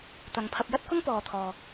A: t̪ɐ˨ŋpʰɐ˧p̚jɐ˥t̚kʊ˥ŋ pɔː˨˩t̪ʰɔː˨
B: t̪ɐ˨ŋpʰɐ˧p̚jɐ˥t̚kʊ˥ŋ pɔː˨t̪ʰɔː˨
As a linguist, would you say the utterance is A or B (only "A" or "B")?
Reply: B